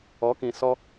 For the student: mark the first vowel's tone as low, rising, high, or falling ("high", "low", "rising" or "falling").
rising